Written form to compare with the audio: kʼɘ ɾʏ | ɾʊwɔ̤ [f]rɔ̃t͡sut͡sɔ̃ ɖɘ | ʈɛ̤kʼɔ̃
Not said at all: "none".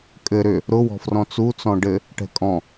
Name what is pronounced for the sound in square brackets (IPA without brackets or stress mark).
f